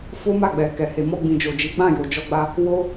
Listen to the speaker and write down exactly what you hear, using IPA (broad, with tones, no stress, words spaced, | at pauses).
fo˦ma˦˨ɡ͡bɛ˨ kɛ˨he˨mɔ˧ ɡ͡bĩ˨d͡ʒo˨d͡ʒi˨˦ɡ͡bã˦˨ jo˨d͡ʒɔ˧ɡ͡ba˧ | wo˧